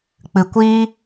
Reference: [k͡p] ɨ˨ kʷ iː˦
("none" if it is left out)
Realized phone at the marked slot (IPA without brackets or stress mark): k͡p